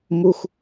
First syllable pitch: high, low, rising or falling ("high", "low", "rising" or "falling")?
low